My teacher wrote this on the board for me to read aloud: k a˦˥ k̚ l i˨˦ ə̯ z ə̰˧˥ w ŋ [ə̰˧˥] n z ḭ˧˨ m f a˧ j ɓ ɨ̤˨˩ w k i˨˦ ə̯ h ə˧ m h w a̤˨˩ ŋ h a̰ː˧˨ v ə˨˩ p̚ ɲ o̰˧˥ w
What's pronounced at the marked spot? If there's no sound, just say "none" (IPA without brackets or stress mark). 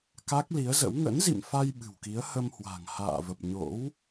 ə̰˧˥